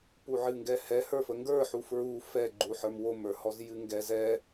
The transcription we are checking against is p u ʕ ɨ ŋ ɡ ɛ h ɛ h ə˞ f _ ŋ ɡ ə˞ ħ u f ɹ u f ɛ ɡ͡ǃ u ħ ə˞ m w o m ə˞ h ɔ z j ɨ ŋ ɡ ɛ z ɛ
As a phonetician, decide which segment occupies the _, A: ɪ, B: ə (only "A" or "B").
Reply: B